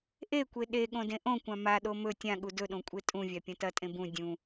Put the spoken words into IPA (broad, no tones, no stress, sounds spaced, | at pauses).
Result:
ʔ e kʷ e ɗ e ɠ õ d ẽ ʔ õ kʷ ã m a ɗ o m ɵ tʲ ã ɠ u d ɵ ɗ õ kʷʼ e tʼ ũ vʲ a pʲ ɐ̃ t ɐ tʼ ẽ b ũ dʲ ũ